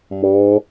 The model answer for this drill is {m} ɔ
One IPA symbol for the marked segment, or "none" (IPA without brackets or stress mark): m